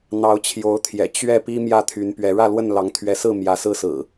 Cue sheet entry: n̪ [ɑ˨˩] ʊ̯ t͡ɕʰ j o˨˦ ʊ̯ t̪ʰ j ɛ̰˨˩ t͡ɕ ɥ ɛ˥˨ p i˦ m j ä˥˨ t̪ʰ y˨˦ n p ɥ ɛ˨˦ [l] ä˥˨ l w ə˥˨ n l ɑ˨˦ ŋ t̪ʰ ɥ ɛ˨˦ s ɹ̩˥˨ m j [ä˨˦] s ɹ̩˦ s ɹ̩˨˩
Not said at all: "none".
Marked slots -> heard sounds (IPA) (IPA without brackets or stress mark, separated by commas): ɑ˨˦, ɻ, ä˨˦